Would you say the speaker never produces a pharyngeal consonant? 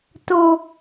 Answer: yes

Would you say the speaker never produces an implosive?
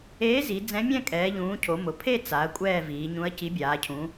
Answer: yes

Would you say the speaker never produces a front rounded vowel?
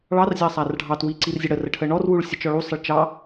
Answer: yes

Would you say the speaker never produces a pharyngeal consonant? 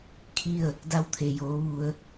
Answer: yes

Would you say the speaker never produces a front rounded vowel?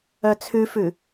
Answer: no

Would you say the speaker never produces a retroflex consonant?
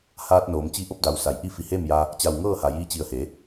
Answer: yes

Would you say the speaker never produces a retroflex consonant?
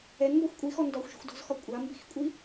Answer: yes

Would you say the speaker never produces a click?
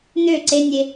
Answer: no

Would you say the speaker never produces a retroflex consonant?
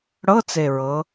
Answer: no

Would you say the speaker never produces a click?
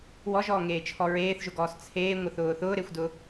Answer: yes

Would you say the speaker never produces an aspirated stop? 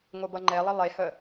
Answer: yes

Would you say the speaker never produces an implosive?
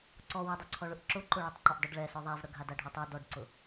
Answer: yes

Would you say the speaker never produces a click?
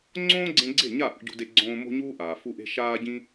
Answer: no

